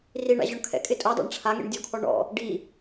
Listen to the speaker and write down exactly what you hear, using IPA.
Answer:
r i ɳ a̰ ʑ ɔ ɳ kʰ ɛ̰ kʼ ɪ tʼ o dˤ a̰ ɳ ʈ͡ʂʰ a ŋ ḛ ɳ dʲ ɔ kʰ ɔ ɳ ɔ̰ | ɖ i

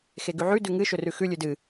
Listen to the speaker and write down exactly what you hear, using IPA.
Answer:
x e ɡ ʉ ʕ ʉ d ʉ ŋ ɨ ʃ ɵ r ʉ x ʉ lʲ ʉ d ɨ

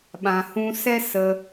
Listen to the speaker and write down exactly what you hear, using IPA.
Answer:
ɓ ã˨ h ũ˧ s ɛ˦ s ə˧

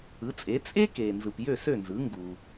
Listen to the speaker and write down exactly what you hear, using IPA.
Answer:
ɯ˩˥ t͡sʼ e˩˥ t͡sʼ e˥ k eː˩ n z ɯ˩ p j ø˥˩ s ø˥˩ n z ɯ˩˥ ŋ ɡ u˩

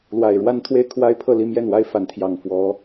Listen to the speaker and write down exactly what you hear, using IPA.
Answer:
l w a˨˩ ɪ̯ ɻ w a˥ n t̪ʰ w e˥˩ ɪ̯ kʰ w a˥ ɪ̯ pʰ ɤ˥˧ l i˥˧ m j ɛ˥˩ n w a˥ ɪ̯ f a˧˥ n t̪ʰ j ɑ˨˩ ŋ f w ɔ˧˥

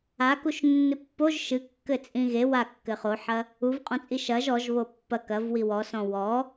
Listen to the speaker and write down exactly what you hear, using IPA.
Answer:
a k u ʃ nː ɨ pː o ʒ ʃ ɨ kː ɘ t͡sʼ ĩ ɣ e w a kː ɘ χ o ħ ɐ | u v qʼ ɔ̃ t͡sʼ i ʃ ɐ ʒ ɔ ʒ β o pː ɐ k ɐ v w i w ɔ s ɔ̃ w ɔ

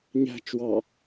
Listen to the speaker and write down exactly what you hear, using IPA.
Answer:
ɲ æ̤ t͡ʃ w ɑ

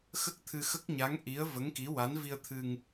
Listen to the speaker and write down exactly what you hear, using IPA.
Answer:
x ə˦˥ k̚ t̪ʰ ɨ˧ x ə˦˥ k̚ ɲ a˧˥ ŋ ʔ i˧˥ ə̯ v ə˧˥ ŋ k i˧˥ w a˧˥ n v i˧ ə̯ t̪ʰ ɨ˧ ŋ

